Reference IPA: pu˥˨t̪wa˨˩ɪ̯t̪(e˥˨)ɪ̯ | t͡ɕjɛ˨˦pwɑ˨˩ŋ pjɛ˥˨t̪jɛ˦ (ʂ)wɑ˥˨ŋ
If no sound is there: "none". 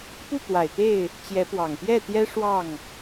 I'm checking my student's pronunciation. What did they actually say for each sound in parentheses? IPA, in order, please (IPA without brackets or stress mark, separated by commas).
e˥˨, ʂ